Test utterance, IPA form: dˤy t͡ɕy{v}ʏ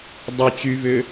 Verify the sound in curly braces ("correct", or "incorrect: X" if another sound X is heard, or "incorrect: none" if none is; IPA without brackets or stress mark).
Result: correct